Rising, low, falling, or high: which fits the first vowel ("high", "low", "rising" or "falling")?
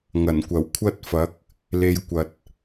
low